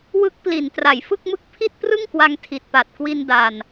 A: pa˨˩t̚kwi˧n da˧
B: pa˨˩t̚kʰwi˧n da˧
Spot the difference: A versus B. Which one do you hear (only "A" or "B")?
A